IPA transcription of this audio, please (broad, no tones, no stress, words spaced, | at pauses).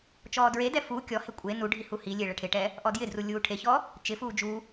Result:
t͡ʃɔːdɹedɛ fu kʲɔhe kʷʼe nuɖʱi huhilʲe ɭɛʈʰɪʈɛ | ʔɔdjɪdru lʲuːʈʰeçɔ | t͡ʃɪfuː d͡ʒu